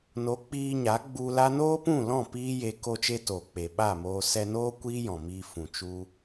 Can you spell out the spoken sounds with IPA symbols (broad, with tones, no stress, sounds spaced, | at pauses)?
n o˨˦ k͡p iː˧ ɲ a˨˦ ɡ͡b u˧ l a˦ n oː˦ p ũ˦˨ l ɔ̃˦˨ p iː˦ j e˧ k o˧ t͡ʃ e˧ t oː˨ k͡p e˨ ɓ a˦˨ m oː˧ s ɛ˧ n oː˦ kʷ iː˦ j ɔ̃˨ m iː˧ f ũ˨ t͡ʃ u˧